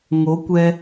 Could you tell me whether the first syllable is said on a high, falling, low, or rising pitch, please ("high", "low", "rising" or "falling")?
rising